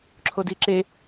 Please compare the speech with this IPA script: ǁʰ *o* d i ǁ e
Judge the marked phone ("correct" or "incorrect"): correct